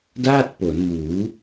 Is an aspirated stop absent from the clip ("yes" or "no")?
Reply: yes